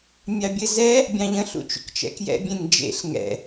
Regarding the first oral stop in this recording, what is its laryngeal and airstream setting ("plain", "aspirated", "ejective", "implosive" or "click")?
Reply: plain